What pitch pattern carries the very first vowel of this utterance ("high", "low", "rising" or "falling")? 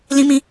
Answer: high